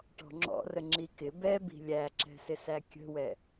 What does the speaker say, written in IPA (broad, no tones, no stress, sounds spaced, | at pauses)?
ʈ ɔ̤ ŋ͡ǁ ɔ̰ r ə ŋ͡ǁ i k ɪ b ɛ b i̤ lʲ æ ǁ ɛ̤ s ɪ s æ kʲ ə̤ w ɛ